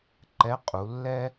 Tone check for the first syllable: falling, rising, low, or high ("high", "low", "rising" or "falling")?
rising